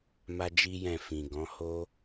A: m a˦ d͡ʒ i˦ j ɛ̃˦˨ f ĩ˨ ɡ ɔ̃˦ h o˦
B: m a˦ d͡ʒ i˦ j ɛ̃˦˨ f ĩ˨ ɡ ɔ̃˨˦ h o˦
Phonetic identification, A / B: B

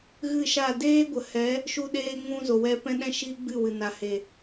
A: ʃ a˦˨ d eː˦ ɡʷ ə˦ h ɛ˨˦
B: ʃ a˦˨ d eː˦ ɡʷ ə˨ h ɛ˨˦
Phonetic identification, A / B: B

